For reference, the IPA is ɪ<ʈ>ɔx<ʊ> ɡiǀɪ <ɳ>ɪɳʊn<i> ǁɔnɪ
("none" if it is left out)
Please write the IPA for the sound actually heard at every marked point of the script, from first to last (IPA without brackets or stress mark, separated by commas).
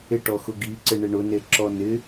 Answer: ʈ, ʊ, ɳ, e